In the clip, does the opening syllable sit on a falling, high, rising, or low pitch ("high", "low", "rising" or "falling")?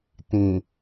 low